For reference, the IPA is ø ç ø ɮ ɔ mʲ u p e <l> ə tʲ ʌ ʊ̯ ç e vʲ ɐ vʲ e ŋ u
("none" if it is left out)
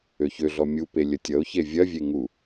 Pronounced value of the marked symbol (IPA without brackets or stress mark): lʲ